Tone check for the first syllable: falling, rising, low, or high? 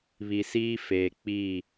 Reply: low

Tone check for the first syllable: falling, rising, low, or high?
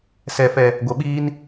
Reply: low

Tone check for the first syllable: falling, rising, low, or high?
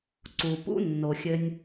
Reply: low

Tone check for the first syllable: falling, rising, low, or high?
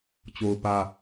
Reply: high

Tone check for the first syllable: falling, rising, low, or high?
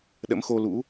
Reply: rising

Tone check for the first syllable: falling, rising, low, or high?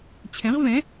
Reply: rising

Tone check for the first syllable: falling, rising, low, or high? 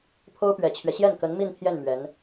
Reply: high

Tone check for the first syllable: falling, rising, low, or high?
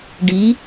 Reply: rising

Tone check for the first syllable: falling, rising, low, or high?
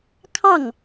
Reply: falling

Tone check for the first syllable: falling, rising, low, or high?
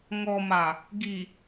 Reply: low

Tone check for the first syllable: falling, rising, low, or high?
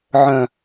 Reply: low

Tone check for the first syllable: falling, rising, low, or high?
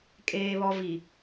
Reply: high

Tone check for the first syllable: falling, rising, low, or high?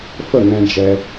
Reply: falling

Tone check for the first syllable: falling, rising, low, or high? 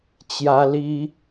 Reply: high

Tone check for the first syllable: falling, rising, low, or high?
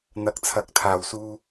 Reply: rising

